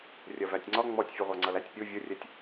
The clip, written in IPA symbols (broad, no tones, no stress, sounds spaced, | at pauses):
rʲ ɜ v æ tʲ ŋ͡ǀ ɒ ŋ͡m ɔ tʲ fʲ ɛ ʁʷ ɑ ŋ͡ǀ ʌ l æ tʲ pʲ u vʲ ʊ rʲ ɛ tʲ